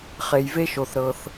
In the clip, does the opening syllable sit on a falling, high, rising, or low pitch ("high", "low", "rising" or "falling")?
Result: low